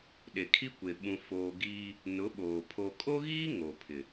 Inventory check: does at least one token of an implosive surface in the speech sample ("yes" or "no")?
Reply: yes